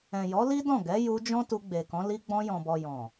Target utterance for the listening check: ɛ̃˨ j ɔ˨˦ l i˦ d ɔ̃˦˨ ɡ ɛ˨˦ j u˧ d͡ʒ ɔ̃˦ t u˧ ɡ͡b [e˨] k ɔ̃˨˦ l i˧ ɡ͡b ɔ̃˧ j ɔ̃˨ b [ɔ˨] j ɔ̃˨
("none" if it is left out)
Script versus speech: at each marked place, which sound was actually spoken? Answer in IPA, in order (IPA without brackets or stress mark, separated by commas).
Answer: e˨, ɔ˨